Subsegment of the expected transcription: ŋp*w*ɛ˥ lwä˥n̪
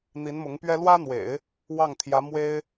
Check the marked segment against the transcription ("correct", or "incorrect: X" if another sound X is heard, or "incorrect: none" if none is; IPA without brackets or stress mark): incorrect: ɥ